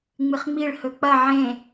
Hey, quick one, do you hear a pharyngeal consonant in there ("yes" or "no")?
yes